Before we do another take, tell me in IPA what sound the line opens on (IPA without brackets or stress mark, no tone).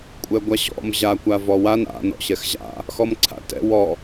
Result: kʷʼ